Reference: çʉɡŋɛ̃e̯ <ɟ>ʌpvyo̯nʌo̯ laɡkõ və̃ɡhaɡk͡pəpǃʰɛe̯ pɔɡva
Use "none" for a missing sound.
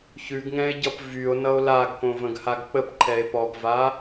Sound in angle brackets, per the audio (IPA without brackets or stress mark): ɟ